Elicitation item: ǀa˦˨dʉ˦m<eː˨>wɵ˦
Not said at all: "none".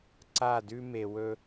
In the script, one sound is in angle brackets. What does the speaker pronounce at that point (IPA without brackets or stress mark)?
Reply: e˨